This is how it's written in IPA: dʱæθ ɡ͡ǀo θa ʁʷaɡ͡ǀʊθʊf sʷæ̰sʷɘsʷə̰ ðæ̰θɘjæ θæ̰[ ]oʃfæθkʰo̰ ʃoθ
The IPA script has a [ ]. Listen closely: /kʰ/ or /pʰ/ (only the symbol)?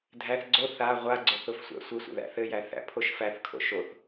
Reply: pʰ